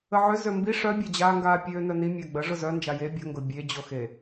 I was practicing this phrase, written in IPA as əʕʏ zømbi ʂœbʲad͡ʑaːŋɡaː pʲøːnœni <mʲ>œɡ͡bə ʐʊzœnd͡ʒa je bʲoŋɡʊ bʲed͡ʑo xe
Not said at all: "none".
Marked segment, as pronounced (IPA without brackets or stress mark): mʲ